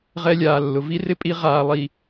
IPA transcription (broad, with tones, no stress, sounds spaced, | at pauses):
ʁ ɛ˦ lʲ aː˨ lː ʊ˨ v i˦ r ɪ˦ pʼ i˨˦ ʁ aː˨ lˠ i˨